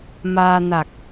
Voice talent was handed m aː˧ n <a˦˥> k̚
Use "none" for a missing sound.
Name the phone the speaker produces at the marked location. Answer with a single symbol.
a˨˩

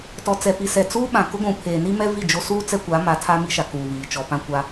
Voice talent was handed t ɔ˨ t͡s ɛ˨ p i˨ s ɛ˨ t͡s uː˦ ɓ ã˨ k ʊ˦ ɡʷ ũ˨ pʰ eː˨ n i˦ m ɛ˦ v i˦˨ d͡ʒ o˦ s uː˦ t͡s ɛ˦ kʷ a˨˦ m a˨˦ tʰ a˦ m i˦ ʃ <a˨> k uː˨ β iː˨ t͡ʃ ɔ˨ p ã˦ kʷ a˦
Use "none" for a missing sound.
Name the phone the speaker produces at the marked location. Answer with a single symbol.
a˨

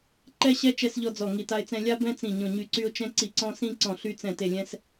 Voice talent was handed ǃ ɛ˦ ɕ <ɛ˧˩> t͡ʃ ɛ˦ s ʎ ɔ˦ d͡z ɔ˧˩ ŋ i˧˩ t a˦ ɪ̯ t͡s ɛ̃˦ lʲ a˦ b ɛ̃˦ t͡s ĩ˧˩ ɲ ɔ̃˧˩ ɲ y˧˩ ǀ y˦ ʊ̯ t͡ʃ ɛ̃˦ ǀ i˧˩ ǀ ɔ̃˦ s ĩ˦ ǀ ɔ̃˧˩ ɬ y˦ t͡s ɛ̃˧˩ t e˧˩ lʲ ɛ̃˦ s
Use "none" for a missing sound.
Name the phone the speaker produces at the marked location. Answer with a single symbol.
ɛ˦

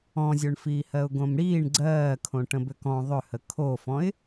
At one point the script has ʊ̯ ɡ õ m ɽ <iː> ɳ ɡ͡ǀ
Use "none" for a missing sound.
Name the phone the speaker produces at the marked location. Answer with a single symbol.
iː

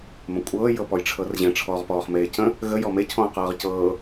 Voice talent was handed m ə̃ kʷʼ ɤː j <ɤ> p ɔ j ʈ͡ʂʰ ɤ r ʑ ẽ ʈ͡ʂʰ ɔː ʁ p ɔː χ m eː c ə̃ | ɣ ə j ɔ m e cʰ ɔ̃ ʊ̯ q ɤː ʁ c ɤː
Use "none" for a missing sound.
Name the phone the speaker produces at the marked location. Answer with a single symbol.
ɤ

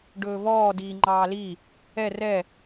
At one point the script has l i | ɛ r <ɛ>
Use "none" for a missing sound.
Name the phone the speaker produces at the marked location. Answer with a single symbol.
ɛ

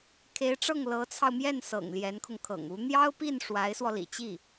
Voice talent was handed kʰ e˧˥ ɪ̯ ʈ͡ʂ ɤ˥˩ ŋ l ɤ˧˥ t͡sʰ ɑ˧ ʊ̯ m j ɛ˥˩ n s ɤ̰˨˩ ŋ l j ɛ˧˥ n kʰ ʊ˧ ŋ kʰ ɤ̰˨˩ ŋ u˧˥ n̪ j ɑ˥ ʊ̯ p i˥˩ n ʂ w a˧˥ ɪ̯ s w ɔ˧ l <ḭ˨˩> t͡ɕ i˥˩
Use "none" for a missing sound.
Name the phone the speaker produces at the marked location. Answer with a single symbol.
ḭ˨˩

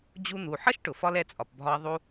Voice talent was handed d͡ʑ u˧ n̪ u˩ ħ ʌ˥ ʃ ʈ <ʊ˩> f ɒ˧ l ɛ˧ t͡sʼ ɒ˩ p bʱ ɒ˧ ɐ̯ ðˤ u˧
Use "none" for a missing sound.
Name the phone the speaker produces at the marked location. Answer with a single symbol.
ʊ˩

